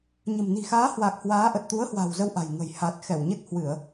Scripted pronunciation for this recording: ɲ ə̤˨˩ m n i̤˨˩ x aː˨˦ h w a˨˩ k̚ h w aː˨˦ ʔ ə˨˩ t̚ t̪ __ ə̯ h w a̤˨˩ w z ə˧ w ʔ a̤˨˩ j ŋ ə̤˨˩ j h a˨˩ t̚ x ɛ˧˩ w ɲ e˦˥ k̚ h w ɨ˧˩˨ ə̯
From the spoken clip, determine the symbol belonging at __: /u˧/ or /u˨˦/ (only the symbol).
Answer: u˨˦